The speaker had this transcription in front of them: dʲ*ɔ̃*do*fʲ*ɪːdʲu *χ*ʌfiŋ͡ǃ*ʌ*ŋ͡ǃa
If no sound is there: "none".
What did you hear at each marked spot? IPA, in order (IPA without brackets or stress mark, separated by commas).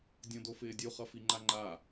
ɔ̃, f, χ, a